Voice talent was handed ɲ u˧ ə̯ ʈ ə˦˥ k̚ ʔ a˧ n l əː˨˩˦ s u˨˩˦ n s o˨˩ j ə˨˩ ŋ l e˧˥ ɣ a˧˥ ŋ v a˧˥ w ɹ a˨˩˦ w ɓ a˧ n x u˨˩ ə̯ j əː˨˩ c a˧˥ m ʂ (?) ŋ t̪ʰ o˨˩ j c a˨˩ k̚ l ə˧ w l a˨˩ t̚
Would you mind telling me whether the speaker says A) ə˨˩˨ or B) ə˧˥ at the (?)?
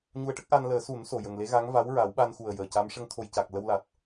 B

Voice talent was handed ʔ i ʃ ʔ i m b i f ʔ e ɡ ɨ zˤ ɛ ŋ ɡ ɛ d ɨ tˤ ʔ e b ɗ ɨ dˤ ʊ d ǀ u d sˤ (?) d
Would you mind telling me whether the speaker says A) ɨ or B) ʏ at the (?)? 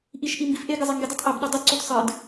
A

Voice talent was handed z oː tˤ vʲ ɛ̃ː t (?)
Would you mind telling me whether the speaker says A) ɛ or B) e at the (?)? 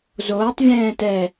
A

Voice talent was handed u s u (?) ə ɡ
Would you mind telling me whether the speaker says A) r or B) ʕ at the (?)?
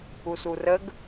A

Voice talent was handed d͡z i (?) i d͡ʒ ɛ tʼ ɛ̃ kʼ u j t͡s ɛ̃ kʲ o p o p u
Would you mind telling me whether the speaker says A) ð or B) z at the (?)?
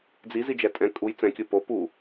B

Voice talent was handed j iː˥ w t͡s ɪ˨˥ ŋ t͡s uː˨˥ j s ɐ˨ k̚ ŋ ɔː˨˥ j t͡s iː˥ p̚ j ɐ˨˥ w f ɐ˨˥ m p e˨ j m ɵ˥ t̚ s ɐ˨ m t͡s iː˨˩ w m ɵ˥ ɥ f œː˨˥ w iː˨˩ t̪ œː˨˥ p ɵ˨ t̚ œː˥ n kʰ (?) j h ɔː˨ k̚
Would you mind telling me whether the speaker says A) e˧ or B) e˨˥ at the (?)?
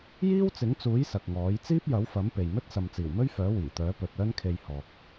A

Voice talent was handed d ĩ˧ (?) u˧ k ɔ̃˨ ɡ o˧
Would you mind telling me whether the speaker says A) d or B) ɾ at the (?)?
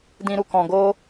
B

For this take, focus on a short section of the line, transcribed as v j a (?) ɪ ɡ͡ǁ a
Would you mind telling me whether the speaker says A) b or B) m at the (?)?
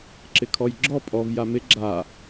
B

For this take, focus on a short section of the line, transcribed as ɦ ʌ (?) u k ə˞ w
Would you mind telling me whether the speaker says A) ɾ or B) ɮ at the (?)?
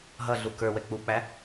B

